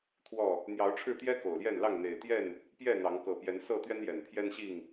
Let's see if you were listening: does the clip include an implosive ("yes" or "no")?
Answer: no